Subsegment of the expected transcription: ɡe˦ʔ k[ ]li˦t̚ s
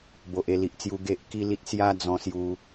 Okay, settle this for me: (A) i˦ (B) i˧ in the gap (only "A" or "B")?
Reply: A